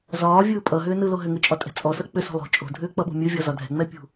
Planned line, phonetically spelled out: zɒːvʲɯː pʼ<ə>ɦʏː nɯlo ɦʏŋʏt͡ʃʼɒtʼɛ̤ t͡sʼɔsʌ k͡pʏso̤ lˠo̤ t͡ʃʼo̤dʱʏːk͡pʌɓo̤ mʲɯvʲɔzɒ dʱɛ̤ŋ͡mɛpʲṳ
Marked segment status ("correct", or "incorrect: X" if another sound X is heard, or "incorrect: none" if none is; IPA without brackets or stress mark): incorrect: ʌ